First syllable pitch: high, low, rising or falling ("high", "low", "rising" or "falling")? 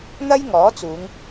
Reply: high